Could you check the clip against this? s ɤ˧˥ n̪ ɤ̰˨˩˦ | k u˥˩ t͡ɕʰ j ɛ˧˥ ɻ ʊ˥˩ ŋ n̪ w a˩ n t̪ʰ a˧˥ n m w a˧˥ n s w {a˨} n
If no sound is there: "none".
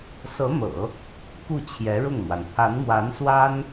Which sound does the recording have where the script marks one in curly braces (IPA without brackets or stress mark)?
a˥